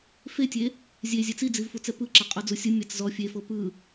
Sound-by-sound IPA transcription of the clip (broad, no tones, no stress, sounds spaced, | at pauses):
f e tʲ e | zʲ e zʲ ɛ t͡s i d͡z i v f u t͡s ɛ p ɯ ǁ a qʼ ɔ d͡z u sʲ ɯ mʲ a t͡s z ɔ fʲ e f ɤ p ɯ